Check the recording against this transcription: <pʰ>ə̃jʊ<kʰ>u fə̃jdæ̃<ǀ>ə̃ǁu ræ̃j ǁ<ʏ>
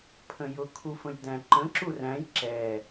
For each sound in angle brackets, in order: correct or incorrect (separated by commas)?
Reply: correct, correct, incorrect, incorrect